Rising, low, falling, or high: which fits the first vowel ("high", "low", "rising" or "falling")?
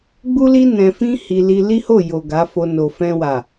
high